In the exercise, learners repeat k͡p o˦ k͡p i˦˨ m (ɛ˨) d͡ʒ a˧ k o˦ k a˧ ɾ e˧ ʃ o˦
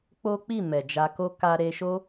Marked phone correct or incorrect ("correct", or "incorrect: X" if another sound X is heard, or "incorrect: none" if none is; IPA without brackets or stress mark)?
correct